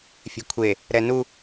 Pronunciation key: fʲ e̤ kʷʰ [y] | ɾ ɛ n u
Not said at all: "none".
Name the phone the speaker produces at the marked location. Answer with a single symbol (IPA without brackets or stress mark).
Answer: e